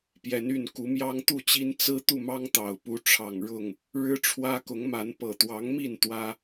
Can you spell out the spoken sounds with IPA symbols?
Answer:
p j ɛ˨˦ n y˥˨ n k u˨˦ m j ɑ˦ ŋ t̪ u˥˨ t͡ɕ i˦ n t͡s ɹ̩˦ t̪ u˥˨ m ɑ˦ ŋ t̪ ɑ˨˩ ʊ̯ p u˨˦ ʈ͡ʂʰ ɑ˨˩ ŋ ɻ ʊ˥˨ ŋ | ɻ ɻ̩˦ ʈ͡ʂʰ w ä˦ k ʊ˨˦ ŋ m a˨˦ n p ɤ˨˩ t̪ w ɑ˨˦ ŋ m i˥˨ n t̪ w ä˦

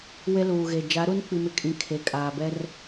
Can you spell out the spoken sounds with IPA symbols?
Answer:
w e˦ l uː˨ ɣ e˨ d͡ʒ a˨˦ ɾ uː˦ n k͡p i˨ m ɪ˨ kʼ ĩ˦ kʰ e˨ kʼ aː˨ b ɛ˦ r

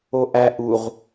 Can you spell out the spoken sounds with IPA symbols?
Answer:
o ʔ æ ʔ u ʁ

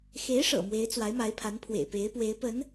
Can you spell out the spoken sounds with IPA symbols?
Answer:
x e˧˥ ɪ̯ ʂ ɤ̰˨˩ m w e˧˥ ɪ̯ t͡s w a˧˥ ɪ̯ m a˧˥ ɪ̯ pʰ a˧˥ n pʰ w ḛ˨˩ ɪ̯ p e˧˥ ɪ̯ p w e˧˥ ɪ̯ p ə˧˥ n

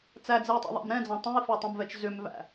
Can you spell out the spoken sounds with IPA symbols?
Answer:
t͡s æ d͡z ɛ i̯ tˤ ṵ ðˤ æ̰ m ɾ ɛ̃ d͡z ɑ̃ tˤ ɛ̃ i̯ f ɛ tˤ ɛ̃ m v ɛ t͡ʃ z ʏ m v æ̰

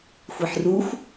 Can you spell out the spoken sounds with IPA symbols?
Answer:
xʷ i ħ r u xʷ

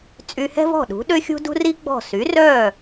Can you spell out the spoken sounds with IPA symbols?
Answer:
t͡sʼ y˧ h ɛ̤˥ v ɔ̤˥˩ ɗ ṳ˩˥ ɗ ø˥ xʲ ṳ˥ d ṳ˥ r i˥ ɡ͡b ɔ̤˥˩ s y˩˥ r œ˥˩

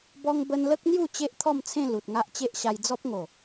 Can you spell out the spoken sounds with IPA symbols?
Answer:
b ɔ˧ ŋ b ə˧ n l ə˦ k̚ n̪ j u˥˧ t͡ɕ e˦ ʔ t̪ʰ ɔ˥˧ m t͡sʰ ẽ˥˧ l u˨ t̚ ŋ a˦ ʔ t͡ɕ e˦ ʔ ɕ a˧ j d͡z ɔ˦ p̚ ŋ o˨˩

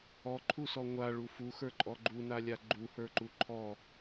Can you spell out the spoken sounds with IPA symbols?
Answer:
ɔ ǃʰ u s ɔ ŋʷ a ɭ u f u x ə˞ ǃʼ ɔ ɡ͡ǃ u n a lʲ a ɡ͡ǃ u h ə˞ ǃ u ǃʰ ɔ

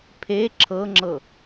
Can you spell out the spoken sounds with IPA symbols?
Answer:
pʰ e ǁʰ ɤ ŋ͡ǁ ɤ

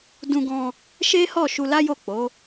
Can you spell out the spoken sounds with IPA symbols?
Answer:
d ũ˧ ɡ ɔ̃˧ | ʃ e˦ h ɔ˦˨ ʃ u˧ l a˦ j o˦˨ k͡p o˨˦

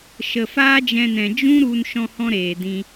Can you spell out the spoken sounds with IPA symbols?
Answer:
ʃ ə˨ f aː˦ d͡ʒ ɛ̃˧ n ɛ̃˨ d͡ʒ ũ˦ ɾ u˧ n ʃ ɔ̃˦ h ɔ̃˦ ɾ eː˨ d ĩ˧

